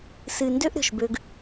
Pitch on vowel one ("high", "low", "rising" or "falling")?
low